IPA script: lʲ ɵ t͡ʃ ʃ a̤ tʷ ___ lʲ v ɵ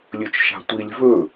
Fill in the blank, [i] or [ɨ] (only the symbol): i